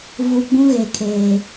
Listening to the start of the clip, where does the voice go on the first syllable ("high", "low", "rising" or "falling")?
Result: low